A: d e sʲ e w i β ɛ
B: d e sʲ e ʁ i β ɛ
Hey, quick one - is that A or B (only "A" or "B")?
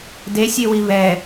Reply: A